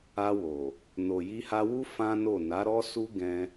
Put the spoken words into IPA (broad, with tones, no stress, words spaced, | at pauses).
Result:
a˧wo˨ | no˨ji˧ha˧wu˦ fã˦no˦˨ na˨˦ ɾɔ˦su˦ ɡɛ̃˧